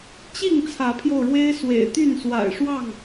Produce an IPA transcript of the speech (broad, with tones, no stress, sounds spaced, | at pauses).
t͡ɕ i˥˨ ŋ t͡sʰ ä˨˦ pʰ j o˧ ʊ̯ ɻ w e˦ ɪ̯ s w ḛ˨˩ ɪ̯ t̪ y˥˨ n s w a̰˨˩ ɪ̯ ʂ w ɑ˥˨ ŋ